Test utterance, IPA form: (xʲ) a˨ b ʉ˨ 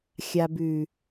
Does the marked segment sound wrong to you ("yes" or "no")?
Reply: no